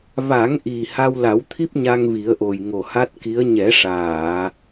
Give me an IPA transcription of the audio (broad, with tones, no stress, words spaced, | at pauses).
va˨˩˦ŋʔi˨˩ ha˧wla˨˩˦wt̪ʰi˦˥p̚ ɲa˧ŋvi˨˩˦ə̯ʔo˨˩j ŋo˨˩ha˦˥t̚ki˧˥ə̯ ɲɛ˨˩˦ʂaː˨˩˨